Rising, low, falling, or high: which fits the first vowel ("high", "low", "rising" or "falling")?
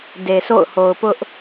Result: low